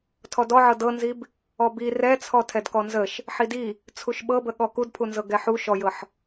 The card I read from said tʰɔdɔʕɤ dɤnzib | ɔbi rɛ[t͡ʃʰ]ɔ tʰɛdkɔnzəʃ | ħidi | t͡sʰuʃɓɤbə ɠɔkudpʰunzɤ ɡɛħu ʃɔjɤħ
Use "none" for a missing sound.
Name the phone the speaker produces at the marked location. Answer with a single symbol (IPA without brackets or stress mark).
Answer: t͡sʰ